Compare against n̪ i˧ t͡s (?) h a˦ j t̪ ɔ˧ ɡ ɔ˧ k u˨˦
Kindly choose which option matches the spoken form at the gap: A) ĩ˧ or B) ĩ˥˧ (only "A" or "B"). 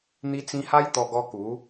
A